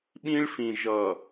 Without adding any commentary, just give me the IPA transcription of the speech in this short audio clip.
ɓ ĩ˦ ɭ f ĩ˨ ʒ ʌ˨

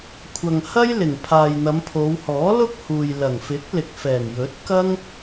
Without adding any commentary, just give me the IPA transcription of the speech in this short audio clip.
kʷʰ ɐ˨ ŋ h ɐ˥ j l ɪ˨˩ ŋ pʰ aː˨ j n̪ ɐ˨˧ m pʰ o˨˧ w h ɔː˨˥ l ʊ˥ k̚ h uː˨ j l ɐ˨˩ ŋ f ɪ˨˥ k̚ l ɪ˨ k̚ f ɛː˨˩ ŋ j ɵ˨˥ t̚ k ɐ˥ ŋ

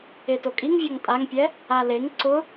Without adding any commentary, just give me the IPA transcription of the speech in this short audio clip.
e t o kʼ i ŋ vʲ ɔ ŋ tʼ a ŋ pʲ ɛ | a l e ŋ ǀ ʊ

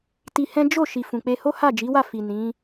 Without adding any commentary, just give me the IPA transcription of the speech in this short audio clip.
t i˧ h ɛ̃˦ d͡ʒ o˦˨ ʃ i˨ f ũ˨ k͡p e˧ h o˦ h a˦˨ d͡ʒ i˨˦ w a˦˨ f i˨ n ĩ˨˦

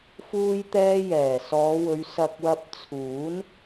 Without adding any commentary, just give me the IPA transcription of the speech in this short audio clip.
f uː˧ j t̪ ɛː˧ j ɛː˨˩ s ɔː˨˧ w ɵ˨˧ ɥ s ɐ˨ k̚ w ɐ˧ p̚ t͡sʰ uː˨˥ n

